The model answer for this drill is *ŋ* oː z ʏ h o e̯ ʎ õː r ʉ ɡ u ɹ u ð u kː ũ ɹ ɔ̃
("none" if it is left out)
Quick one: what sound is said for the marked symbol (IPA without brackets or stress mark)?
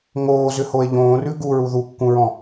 ŋ